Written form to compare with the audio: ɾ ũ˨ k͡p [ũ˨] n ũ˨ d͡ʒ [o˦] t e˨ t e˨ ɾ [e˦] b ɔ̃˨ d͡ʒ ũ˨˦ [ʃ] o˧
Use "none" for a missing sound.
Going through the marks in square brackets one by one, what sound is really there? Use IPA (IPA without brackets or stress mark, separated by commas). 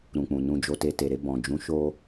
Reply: ũ˨, o˨, e˧, ʃ